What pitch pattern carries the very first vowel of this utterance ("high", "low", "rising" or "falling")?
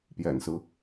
low